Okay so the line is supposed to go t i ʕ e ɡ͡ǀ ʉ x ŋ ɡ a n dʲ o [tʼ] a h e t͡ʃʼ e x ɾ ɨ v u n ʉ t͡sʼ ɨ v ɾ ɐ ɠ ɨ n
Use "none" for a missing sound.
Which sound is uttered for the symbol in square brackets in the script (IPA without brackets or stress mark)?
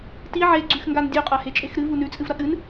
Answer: qʼ